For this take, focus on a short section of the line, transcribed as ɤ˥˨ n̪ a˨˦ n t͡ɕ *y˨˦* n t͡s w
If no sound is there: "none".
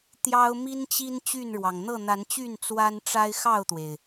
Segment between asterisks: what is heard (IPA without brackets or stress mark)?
y˥˨